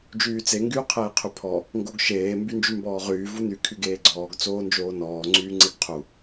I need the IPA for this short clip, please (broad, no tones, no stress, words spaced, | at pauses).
d͡ʒyːt͡se ŋɡyːqʰeːqʰypʰɔ | ŋɡoɡʃeː mbynd͡ʒymbɔːʁyː vuny kʰyɡeːɡ͡ǀɔːɡ t͡soːnd͡ʒoːnɔː ŋ͡ǀyːŋ͡ǀeɡqʰu